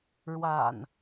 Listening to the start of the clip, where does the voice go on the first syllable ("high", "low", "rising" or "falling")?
low